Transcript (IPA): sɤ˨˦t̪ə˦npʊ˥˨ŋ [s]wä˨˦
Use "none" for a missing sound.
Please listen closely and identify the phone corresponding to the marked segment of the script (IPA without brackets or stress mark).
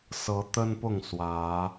s